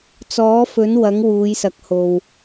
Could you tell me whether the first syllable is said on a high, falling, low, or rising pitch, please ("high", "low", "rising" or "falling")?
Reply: rising